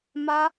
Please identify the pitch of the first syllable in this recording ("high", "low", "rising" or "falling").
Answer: high